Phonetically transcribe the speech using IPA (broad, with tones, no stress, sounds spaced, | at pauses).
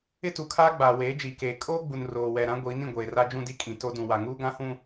ɪ˦ t u˨ kʰ aː˦ ɡ͡b aː˨ w eː˨˦ d͡ʒ iː˨ k eː˨ kʼ oː˦ ɡ͡b u˨ n r oː˨ w ɛ˨ ɾ ã˦ ɡʷ iː˨˦ n ĩ˨ ɡʷ eː˨ r a˦ d͡ʒ ũ˦ d i˦ kʼ ĩ˨ t o˦ d ũ˨ w a˨ ŋ uː˦ ɡ ã˦ h ũ˦